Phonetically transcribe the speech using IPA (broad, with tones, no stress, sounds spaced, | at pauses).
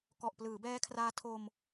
k ɔ˨˩ ʔ p l ɯː˩˦ b ɛː˦˥ kʰ r aː˦˥ tʰ o˧ m